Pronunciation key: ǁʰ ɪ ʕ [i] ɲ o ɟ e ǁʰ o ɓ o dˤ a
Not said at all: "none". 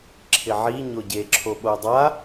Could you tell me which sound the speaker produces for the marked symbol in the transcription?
i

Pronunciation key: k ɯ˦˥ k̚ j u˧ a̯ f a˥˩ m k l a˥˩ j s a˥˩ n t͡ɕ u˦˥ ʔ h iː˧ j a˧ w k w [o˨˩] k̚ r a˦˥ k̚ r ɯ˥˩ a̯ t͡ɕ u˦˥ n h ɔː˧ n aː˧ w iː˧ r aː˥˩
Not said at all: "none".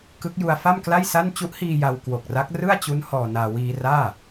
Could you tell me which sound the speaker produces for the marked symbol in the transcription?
o˨˩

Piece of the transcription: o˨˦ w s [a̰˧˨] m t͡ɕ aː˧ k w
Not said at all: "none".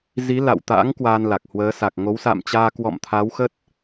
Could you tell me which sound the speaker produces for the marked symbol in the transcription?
a̰˧˨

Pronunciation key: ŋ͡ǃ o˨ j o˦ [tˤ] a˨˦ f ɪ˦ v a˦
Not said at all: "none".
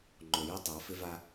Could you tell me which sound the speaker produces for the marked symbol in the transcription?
tˤ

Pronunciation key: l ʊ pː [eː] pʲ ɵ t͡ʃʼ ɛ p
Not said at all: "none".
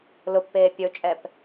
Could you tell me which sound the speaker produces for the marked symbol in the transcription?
eː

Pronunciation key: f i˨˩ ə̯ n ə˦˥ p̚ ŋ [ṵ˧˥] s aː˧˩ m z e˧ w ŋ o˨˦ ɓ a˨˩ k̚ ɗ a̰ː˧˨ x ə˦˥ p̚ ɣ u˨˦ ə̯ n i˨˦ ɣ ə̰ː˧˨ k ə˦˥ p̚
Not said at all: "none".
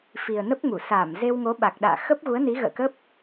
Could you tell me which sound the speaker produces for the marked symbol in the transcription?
u˧˩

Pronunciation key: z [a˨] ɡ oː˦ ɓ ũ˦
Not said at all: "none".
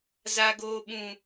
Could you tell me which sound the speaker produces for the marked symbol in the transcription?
a˦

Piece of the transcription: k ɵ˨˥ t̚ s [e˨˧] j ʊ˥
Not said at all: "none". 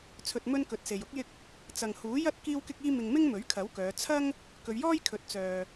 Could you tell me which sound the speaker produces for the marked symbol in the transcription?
e˨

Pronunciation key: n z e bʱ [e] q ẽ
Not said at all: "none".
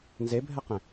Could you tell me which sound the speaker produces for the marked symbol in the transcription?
ɛ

